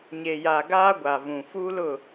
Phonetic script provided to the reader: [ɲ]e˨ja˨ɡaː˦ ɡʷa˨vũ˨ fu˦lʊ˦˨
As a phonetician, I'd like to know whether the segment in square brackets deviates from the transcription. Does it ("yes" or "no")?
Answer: no